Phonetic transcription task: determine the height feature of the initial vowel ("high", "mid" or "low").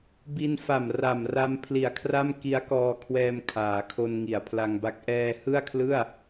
high